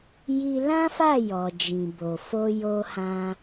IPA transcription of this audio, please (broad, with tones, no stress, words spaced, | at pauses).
ji˧lã˦fa˦˨ jɔ˨d͡ʒĩ˨bo˨ fo˧jo˧hã˧